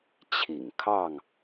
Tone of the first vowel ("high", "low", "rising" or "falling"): low